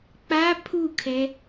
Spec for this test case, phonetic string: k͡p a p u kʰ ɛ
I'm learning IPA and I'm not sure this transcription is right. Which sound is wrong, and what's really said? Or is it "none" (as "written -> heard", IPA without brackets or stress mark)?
p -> pʰ